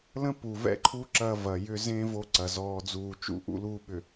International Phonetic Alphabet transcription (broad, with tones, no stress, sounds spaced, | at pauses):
l ə̃˦ p u˨ v ɛ̰˦ ǃʰ u˦ ǁ ɐ˦ v ɐ˨ j ʏ˦ z ẽ˦ v o˦ ǀ ɐ˨ z ɔː˦ d͡z uː˦˨ t͡ʃ ṵ˦ ʔ ṵ˦ l u˦ ɓ ʏ˨